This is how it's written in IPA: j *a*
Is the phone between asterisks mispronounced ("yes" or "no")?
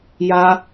no